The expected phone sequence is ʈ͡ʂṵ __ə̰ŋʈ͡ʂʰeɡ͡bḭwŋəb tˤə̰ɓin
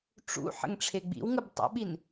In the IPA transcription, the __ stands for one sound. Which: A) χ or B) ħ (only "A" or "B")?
B